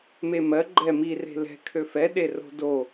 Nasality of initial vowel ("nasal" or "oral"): oral